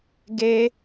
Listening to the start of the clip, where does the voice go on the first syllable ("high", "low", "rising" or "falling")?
high